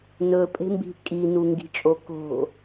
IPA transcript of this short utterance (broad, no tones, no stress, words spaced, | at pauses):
nɵpʼe̤mbi̤ kʼinuŋɡi̤t͡ʃʼo ko̤